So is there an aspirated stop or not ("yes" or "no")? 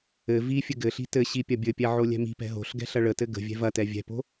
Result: no